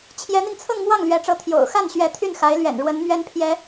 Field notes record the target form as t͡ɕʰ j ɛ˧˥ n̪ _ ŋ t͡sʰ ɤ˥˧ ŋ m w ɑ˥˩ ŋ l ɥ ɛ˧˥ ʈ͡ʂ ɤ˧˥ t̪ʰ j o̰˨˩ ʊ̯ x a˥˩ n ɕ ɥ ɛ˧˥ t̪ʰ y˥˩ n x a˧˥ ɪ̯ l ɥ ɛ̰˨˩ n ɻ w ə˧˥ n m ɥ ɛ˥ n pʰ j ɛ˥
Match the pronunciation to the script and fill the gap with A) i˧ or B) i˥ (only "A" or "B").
A